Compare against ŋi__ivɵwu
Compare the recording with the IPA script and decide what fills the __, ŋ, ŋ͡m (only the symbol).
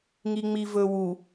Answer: ŋ͡m